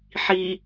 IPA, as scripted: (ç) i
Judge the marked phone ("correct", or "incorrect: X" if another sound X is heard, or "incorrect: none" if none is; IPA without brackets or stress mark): incorrect: ħ